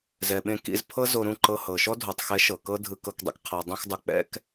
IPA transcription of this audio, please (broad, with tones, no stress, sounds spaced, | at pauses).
z ɛ˨ ɓ ẽ˧ k ḭ˧ z pʰ ɤ˦ z o˧ ɾ ũ˦˨ ǃ ɤ˧ h ɤ˨ ʃ ɔ˦ dʱ o˨ tˤ x ɛ˨˦ ʃ ɤ˨ k ɤ˦ dʱ ɯ˧ k ɤ˧ k dˤ ɛ̰˧ k qʰ a˨ dˤ ẽ˧ x dˤ u˨ k͡p ɛ̰˧ k